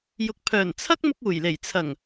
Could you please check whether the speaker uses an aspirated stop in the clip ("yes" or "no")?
yes